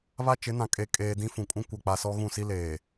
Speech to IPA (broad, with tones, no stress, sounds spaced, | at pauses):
β a˦ t͡ʃ ɪ˨˦ n ã˨ kʼ e˨ kʼ eː˨ d ĩ˦ f ũ˨ kʼ ũ˦ kʷ a˨ k͡p a˨ s ɔ˦ ɣ ũ˦˨ s i˦ l eː˨